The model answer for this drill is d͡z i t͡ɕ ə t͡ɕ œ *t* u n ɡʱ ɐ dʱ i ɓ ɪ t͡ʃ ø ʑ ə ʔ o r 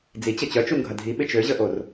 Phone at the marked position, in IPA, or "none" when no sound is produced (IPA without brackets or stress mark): t͡ʃ